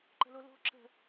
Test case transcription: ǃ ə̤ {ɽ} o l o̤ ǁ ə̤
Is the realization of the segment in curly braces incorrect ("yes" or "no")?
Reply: yes